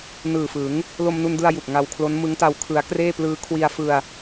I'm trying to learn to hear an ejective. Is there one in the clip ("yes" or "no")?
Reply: no